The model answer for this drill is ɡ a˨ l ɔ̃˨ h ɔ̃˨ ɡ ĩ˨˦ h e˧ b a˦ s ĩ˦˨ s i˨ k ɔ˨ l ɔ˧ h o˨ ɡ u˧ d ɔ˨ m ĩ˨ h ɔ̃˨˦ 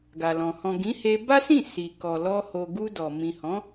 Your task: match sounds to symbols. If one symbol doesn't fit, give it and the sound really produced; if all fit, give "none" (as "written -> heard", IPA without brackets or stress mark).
none